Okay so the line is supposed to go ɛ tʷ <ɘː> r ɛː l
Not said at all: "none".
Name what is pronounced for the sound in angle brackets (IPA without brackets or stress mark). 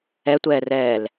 ɛː